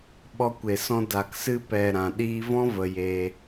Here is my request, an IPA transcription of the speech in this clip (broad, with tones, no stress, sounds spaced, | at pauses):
ɓ ɔ˧ kʷ e˨ s ɔ̃˧ d a˨ k s ɨ˧ p ɛ˨ ɾ ã˨ ɗ iː˧ v ɔ̃˦ v ə˧ j e˧